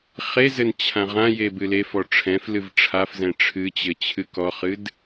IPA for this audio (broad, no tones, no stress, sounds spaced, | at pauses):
χ e z ɘ n t͡ɕʰ ã ʁ ã j e b ɨ l e f ɔ ʈ͡ʂʰ ɛ̃ f l ɨ v ʈ͡ʂʰ a f z ɛ̃ ʈ͡ʂʰ ɨ t͡ɕ ɘ t͡ɕʰ ɨ k ɔ χ ɨ d